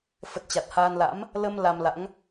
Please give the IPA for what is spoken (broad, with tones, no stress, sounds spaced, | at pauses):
f ə˨˩ t̚ t͡ɕ a˨˩ t̚ h aː˧ n l a̰˧˥ m | l ə˧ m l a˧ m l a̰˧˥ ŋ